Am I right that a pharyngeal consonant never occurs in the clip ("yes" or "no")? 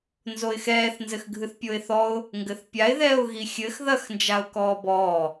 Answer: yes